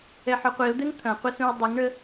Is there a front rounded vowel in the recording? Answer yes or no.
yes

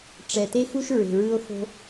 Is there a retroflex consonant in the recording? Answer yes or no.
yes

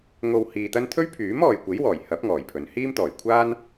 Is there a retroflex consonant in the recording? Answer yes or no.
no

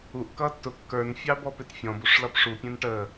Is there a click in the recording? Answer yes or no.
no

